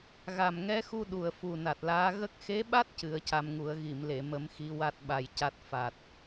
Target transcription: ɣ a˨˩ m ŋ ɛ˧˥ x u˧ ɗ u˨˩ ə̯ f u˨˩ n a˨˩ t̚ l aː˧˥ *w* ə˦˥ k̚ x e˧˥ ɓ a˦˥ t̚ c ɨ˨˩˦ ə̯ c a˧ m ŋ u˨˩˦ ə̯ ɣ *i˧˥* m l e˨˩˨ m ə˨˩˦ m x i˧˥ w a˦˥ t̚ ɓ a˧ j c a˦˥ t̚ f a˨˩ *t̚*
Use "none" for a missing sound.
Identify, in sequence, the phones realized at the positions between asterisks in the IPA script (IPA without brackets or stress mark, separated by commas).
ɣ, i˨˩˨, t̚